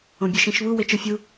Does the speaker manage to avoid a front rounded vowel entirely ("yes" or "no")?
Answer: yes